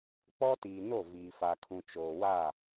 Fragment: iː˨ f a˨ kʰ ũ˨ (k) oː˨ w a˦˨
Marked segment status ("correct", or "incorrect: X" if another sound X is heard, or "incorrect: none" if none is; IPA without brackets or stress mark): incorrect: t͡ʃ